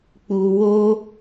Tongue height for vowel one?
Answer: high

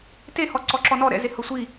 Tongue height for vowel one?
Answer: mid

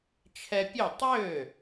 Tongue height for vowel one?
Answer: mid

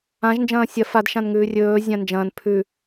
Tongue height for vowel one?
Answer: low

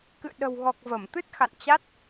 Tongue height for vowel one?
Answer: high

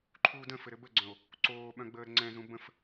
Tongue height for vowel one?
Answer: high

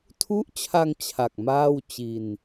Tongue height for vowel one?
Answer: high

